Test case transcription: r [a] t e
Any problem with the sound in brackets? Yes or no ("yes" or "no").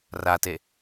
no